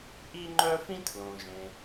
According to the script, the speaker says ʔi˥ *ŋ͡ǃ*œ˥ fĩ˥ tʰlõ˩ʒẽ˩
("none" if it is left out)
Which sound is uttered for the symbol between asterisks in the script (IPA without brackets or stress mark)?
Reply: ŋ͡ǃ